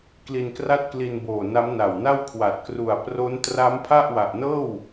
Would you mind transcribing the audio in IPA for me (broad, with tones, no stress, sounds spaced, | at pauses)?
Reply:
k l i˧ n k r a˥˩ t̚ k l i˧ n b oː˨˩ n a˦˥ m n a˨˩ w n a˥˩ w kʰ w a˨˩ t̚ k r u˨˩ a̯ p r o˦˥ n t r a˦˥ m pʰ a˥˩ ʔ w a˨˩ ʔ n ɤː˥˩ w